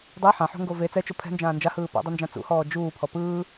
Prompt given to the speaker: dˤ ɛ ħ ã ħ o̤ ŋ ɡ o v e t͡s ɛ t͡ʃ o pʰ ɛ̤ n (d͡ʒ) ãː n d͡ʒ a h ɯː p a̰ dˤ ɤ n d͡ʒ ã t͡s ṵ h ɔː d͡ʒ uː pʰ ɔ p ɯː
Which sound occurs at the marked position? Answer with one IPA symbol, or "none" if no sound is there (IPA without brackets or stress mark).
d͡ʒ